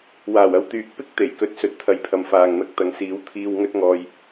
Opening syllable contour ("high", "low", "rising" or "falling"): low